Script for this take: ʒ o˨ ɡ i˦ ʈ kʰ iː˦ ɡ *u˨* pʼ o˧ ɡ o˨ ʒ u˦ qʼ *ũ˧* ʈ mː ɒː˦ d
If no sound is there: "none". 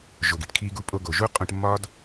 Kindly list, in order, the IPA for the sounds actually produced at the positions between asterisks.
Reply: u˦, ũ˧

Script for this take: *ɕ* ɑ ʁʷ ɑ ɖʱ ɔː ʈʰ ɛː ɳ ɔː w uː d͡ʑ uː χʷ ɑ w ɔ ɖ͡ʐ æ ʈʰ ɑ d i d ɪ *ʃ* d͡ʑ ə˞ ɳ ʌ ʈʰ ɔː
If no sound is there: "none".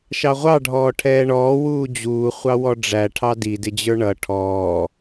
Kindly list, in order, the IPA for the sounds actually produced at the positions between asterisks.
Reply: ʃ, none

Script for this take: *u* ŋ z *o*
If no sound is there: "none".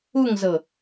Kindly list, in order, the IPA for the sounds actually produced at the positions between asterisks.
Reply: u, ɤ

